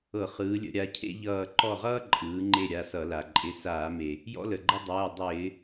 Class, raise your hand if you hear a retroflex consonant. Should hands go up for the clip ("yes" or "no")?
no